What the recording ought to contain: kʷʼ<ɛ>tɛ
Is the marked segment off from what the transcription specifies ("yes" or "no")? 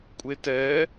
yes